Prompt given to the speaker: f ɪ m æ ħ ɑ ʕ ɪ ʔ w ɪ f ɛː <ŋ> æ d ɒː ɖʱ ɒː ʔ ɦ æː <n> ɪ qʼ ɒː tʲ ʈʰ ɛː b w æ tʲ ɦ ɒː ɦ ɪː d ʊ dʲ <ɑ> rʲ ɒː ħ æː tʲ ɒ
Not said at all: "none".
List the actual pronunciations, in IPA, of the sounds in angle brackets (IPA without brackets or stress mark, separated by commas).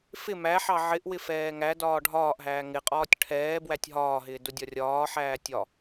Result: ŋ, ŋ, ɒ